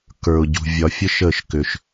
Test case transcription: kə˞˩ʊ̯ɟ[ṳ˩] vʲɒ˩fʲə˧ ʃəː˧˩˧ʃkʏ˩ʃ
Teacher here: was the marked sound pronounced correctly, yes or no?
yes